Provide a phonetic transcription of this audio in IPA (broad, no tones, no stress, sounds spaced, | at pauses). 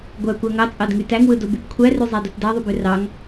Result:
ɡʷ æ kʷ æ ŋ ɑ t͡sʼ ɑ d ŋ y t æ ŋ w ɯ d o b y b kʷʰ æ r y zˤ æ d o t d æ ðˤ y b ø r ɑ ŋ